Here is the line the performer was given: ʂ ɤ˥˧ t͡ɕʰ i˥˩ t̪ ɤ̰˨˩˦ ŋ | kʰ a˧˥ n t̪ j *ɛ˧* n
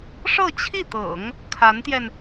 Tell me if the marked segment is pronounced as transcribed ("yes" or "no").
yes